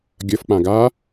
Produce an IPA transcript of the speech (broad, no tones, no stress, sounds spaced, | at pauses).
ɡʲ ʌ f k͡p ã ɡ a